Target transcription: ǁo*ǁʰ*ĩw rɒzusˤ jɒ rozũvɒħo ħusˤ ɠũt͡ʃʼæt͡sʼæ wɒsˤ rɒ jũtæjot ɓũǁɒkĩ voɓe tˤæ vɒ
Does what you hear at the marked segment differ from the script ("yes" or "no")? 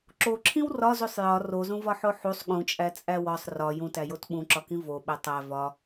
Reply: no